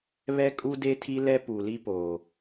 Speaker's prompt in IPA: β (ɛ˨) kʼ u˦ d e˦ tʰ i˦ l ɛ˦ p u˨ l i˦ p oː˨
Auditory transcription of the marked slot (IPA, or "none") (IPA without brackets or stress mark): ɛ˦